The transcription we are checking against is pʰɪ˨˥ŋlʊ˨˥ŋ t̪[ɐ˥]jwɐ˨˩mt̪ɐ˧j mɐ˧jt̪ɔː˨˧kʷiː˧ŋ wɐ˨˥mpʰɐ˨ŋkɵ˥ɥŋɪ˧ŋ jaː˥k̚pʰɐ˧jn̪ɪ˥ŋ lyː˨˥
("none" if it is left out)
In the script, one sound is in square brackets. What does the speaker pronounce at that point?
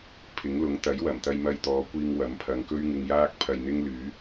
ɐ˨˥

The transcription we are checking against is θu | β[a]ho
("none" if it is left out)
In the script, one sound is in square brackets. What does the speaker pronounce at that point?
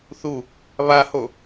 a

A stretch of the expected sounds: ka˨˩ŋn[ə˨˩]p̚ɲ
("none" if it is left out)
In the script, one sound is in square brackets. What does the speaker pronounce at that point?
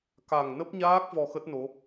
ə˦˥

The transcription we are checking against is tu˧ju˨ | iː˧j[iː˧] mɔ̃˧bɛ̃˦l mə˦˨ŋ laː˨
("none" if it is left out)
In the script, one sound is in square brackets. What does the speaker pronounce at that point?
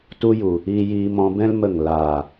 iː˧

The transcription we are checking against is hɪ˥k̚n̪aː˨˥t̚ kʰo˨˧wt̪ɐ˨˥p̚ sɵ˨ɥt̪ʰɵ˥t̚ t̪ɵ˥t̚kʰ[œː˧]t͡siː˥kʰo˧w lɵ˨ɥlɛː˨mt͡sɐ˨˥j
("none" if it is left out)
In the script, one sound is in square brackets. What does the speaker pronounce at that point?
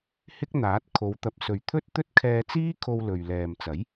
ɛː˧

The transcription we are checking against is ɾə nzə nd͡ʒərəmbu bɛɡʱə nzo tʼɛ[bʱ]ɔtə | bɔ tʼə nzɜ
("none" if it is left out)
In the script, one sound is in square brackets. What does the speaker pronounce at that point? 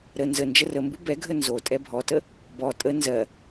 bʱ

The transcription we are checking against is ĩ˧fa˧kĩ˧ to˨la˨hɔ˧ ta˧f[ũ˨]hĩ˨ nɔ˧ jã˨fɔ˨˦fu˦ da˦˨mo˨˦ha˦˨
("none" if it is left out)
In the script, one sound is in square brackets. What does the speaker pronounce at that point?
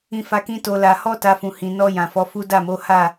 ũ˨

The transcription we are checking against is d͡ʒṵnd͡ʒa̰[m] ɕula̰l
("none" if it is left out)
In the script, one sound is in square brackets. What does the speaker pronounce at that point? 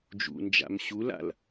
m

